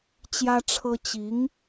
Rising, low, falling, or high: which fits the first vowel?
high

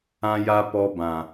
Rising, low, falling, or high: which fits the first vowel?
high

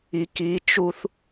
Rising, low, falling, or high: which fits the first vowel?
low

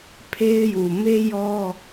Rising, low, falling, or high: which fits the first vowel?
high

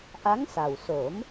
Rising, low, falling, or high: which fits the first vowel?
rising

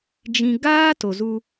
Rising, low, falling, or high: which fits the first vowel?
low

